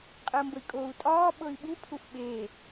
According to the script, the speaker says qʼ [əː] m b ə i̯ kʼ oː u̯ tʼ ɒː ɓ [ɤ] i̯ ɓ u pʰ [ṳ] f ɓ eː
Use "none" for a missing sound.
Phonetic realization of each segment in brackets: əː, ɤ, u

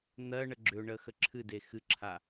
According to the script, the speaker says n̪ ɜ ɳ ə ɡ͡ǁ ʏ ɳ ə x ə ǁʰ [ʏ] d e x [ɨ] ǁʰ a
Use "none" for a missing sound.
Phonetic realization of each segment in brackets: ɨ, ɨ

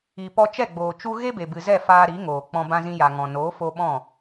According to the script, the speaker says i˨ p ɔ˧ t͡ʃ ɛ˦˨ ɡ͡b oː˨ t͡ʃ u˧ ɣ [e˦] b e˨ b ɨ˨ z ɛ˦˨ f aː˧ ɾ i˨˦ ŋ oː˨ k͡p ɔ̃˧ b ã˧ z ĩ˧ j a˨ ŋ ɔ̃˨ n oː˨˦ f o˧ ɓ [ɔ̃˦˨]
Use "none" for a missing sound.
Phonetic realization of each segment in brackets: e˦, ɔ̃˦˨

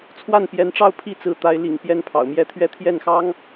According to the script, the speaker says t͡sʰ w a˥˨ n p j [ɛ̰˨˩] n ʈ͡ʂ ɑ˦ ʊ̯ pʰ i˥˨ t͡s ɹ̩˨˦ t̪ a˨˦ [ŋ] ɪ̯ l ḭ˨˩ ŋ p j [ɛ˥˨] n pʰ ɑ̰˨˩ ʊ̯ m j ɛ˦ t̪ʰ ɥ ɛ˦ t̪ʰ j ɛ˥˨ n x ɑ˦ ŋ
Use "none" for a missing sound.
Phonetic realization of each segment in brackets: ɛ˨˦, none, ɛ˥˨

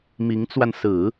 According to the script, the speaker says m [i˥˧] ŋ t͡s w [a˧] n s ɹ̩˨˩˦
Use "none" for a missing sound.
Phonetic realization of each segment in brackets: i˧˥, a˧

